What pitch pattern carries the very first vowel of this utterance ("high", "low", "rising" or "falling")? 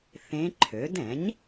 rising